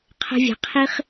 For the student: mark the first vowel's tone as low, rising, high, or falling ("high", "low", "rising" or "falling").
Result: high